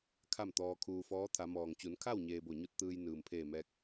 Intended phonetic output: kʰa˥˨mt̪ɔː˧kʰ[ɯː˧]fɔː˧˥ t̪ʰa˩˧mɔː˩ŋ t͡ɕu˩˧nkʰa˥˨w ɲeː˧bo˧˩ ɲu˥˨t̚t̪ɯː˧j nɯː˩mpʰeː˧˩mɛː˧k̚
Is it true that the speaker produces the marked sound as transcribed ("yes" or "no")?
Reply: no